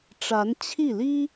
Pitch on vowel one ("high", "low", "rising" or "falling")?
rising